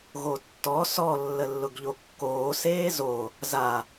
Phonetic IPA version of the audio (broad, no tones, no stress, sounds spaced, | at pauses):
ɣ o tː ɔ s ɔ lː ə lː ʊ ɡ ʎ o kː oː s eː z o | z a